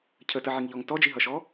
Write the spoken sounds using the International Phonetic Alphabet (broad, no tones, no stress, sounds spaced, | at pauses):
cʰ ə t ə ʕ i ŋ ʎ ɔ ŋ t ɔ d͡ʒ i ɦ ʌ ʃ ɔ